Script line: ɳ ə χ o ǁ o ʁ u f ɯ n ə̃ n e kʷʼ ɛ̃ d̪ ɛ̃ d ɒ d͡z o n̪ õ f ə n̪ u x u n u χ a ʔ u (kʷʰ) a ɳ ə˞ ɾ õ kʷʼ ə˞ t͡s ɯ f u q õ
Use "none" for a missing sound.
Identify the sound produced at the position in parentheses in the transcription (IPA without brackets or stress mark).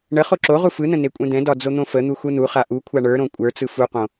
kʷʰ